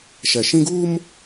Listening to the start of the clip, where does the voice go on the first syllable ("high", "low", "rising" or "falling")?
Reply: low